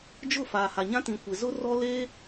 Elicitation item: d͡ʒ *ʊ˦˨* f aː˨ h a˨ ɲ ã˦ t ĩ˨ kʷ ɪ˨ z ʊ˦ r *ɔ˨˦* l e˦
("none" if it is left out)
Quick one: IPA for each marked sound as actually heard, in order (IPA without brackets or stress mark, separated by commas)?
ʊ˦˨, ɔ˦